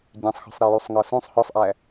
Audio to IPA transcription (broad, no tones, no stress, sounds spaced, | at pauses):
ɟ ɛ̃ sˤ x ɔ̤ sˤ ɾ ɛ j u sˤ ŋ ɒ s ũ sˤ h ɔ sˤ ʔ æ